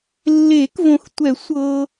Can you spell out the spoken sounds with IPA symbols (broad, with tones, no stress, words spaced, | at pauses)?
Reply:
lːe˨˩˦kvõ˨xtʷɛ˨˩˦ sʷɤ˨